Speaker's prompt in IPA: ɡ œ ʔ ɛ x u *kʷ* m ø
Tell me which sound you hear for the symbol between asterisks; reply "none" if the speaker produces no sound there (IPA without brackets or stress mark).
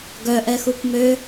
kʷ